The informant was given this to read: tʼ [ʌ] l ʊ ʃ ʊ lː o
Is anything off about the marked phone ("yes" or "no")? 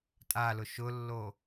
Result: yes